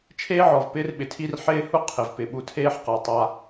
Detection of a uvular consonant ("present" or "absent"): present